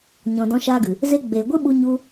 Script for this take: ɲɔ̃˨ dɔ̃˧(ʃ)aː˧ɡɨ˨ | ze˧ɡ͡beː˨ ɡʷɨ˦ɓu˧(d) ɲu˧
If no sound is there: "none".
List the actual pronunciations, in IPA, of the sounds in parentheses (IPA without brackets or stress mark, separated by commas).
ʃ, none